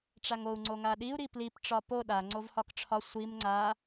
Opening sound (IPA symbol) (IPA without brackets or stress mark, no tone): ʈ͡ʂ